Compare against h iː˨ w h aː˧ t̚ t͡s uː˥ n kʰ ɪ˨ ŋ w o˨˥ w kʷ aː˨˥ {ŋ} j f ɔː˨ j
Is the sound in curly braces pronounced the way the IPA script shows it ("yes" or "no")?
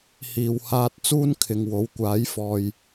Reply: no